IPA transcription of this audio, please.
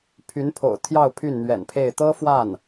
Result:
pʰ y˧˥ n pʰ o̰˨˩ ʊ̯ t̪ʰ j ɑ˥˧ ʊ̯ pʰ y˥˩ n n̪ ɥ ɛ̰˨˩ n pʰ e˥˩ ɪ̯ t̪ ɤ˥ f w a˥˩ n

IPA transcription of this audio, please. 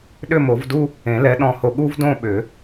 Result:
ɗ ʏ˥˧ m o˨˩˦ v d u˥ | ẽ˨˩˦ l ɛ˨˥ ɗ ɔ̃˧ h o˧ ɠ u˥ v d õ˥˧ ɓ ʏ˨˩˦

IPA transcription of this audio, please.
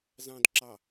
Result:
z ɑ̃ d ǁ ɑ

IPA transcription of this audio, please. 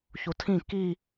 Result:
ç u tʰ ĩ k i

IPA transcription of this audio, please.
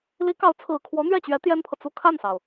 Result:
l i˧˥ k ɑ˧˥ ʊ̯ t͡sʰ ɹ̩˨˩ kʰ w ɔ˧˥ n̪ ɥ ɛ˥˩ t͡ɕ ɥ ɛ˧˥ t̪ j ɛ˥ n pʰ ɤ˨ t͡s u˥˧ kʰ a˥˩ n s ɑ˩ ʊ̯

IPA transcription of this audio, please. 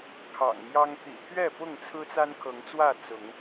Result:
kʰ ɑ̰˨˩ ŋ m j ɑ˦ ŋ t̪ ḭ˨˩ t̪ʰ ɥ ɛ˥˨ p ʊ˥˨ ŋ t͡sʰ ɹ̩˦ t͡s a˦ n kʰ ɤ˨˦ ŋ t͡s w ä˥˨ t͡s ʊ˨˦ ŋ

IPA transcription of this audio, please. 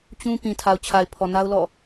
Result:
t͡ɕ ũ˦ p ĩ˨ tʰ a˨ ʊ̯ t͡ɕʰ a˨ ɪ̯ pʰ ɔ˨ n a˦ ʊ̯ l ɔ̰˦˨

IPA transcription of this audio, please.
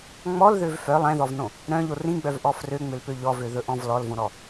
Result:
ŋ͡m ɔ l ð ø v f œ lˠ ɛ̃ ð ɔ v n õ | ɾ œ̃ ʎ o r ĩ ɡ͡b œ v ʔ ɔ f r ø ŋ͡m ø l p ø ʎ ɔ v ø ð ɵ ʔ ɔ̃ v l ɔ l v õ ɾ ɔ

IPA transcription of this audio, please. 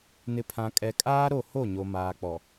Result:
n ɪ˨ pʰ ã˨ kʼ ɛ˨ kʼ aː˦ ɾ o˦˨ h o˦˨ ɲ o˨ m aː˨ k͡p ɔ˨

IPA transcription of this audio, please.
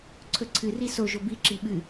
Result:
ǀʰ ɵ ǀʰ ɨ r i s o ʒ o b i ǁ i ɓ ɨ

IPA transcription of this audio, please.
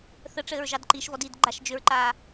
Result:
θ ə ʈ͡ʂ ɘː ɹ ʒ ɑ d ǃ i ʃ v ɔ d iː d ɡ͡ǃ a ʃ d͡ʒ ʏ ɹ ǃ aː

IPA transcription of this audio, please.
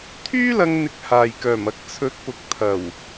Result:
t̪ʰ yː˥ l ɐ˧ ŋ n̪ ɪ˧ k̚ h aː˨ j k œː˨˩ m ɐ˧ k̚ t͡sʰ ɵ˨˥ t̚ p ʊ˨˥ k̚ t̪ʰ ɐ˨˩ w

